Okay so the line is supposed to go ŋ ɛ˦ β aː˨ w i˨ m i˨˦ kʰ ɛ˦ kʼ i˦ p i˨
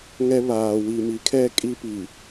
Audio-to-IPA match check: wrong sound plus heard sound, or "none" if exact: none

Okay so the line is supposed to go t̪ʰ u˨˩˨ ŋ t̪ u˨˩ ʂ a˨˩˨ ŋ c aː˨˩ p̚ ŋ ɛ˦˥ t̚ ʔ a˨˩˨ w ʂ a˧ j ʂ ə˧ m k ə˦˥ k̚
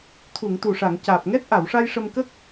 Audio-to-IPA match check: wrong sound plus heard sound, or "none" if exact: none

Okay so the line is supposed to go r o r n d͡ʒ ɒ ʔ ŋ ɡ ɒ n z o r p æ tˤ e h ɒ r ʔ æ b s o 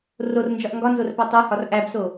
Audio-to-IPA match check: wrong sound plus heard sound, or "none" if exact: none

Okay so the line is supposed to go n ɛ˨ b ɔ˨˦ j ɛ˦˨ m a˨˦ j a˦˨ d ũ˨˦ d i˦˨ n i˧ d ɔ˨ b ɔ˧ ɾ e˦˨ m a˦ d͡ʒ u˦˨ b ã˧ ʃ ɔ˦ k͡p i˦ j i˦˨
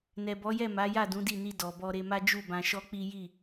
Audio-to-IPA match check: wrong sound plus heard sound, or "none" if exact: e˦˨ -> e˧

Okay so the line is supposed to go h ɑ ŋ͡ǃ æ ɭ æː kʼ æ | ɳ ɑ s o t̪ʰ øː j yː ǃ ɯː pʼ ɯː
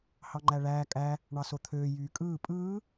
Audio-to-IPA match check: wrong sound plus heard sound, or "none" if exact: ǃ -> kʼ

